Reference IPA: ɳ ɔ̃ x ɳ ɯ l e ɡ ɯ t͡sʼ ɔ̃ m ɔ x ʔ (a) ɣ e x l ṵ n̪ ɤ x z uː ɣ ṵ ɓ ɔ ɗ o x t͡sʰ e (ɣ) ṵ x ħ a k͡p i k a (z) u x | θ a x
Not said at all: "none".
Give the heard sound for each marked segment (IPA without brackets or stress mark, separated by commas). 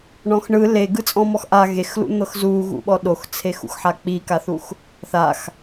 a, x, θ